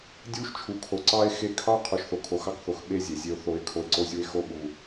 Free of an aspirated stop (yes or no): no